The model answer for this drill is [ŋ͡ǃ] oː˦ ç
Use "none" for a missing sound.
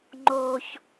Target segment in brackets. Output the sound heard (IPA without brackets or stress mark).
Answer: ŋ͡ǃ